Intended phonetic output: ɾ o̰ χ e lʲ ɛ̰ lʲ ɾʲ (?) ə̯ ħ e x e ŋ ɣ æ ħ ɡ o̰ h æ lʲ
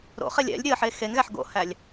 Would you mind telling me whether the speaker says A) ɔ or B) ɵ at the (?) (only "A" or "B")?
B